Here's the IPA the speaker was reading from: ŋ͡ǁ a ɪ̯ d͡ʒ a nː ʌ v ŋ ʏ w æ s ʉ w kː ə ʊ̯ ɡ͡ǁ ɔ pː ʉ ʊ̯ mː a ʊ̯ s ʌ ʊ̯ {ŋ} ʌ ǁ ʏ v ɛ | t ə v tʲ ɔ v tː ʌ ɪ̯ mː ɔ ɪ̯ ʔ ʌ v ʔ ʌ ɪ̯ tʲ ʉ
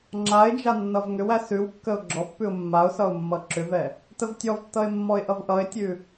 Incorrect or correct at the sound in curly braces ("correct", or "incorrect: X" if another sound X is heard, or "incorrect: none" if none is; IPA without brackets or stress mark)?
incorrect: mː